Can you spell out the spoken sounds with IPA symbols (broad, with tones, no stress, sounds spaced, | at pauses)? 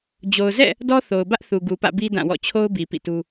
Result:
d͡ʑ o˨ ʊ̯ z ɛ̰˦˨ | d ɔ˦ θ o˨ ʊ̯ b ä˦ ʔ θ u˨ ɡ u˨ p ä̰˦˨ b i˦ d ã˦˨ w ɔ̰˦˨ t͡ɕʰ o˦ ʊ̯ b i˨ p ḭ˦˨ t u˦